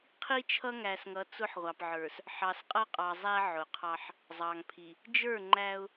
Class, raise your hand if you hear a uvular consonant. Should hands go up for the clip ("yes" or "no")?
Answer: yes